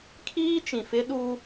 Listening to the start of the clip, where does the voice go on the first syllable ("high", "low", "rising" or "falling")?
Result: high